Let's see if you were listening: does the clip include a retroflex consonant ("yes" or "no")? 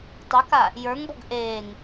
no